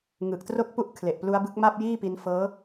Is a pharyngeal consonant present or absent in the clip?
absent